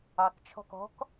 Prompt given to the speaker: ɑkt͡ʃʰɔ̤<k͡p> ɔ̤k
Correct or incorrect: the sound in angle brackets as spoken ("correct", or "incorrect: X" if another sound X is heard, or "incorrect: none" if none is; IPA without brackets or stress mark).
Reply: incorrect: k